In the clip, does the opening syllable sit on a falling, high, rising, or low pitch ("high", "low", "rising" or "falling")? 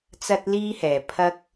high